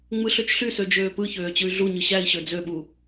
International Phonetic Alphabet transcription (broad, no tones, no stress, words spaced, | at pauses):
ŋ͡mɯɬøt͡ʃɬysø d͡ʒøːpɯçøː t͡ɕɯy̯ɮuɲɯ ɕæi̯ ɕød͡zøɓu